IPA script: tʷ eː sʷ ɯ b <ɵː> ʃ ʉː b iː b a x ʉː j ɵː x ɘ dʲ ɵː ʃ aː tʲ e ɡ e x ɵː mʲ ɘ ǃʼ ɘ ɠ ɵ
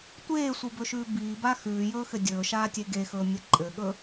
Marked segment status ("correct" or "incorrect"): incorrect